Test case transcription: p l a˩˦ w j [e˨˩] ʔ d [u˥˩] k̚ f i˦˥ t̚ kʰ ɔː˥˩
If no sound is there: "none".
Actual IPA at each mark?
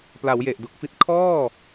e˨˩, u˨˩

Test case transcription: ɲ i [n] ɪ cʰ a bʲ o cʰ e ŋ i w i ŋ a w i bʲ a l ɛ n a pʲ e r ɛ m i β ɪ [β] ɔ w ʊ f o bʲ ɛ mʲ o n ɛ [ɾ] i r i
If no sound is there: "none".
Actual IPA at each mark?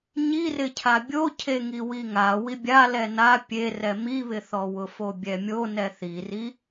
r, θ, θ

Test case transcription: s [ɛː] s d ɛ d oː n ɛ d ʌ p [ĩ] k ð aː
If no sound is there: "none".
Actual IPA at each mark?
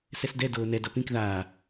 ɛ, ĩ

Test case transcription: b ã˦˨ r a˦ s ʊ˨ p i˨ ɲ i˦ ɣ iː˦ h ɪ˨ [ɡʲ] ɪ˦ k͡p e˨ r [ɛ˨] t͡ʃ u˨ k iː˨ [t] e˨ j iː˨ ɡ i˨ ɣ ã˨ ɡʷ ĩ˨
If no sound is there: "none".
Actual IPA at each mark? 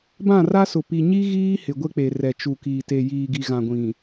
ɡʷ, ɛ˨, t

